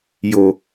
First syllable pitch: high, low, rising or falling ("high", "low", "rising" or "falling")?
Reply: low